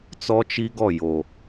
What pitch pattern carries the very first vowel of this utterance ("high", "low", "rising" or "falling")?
high